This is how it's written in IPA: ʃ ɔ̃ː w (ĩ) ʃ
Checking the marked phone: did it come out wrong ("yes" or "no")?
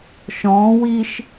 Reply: yes